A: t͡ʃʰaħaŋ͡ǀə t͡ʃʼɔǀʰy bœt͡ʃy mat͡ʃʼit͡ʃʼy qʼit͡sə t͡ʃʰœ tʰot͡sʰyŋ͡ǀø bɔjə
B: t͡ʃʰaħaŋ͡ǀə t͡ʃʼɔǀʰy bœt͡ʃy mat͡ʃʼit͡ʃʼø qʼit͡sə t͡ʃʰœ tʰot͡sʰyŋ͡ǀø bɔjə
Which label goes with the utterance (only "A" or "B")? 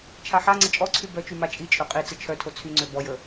B